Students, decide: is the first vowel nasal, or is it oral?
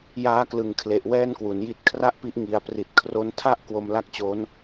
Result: oral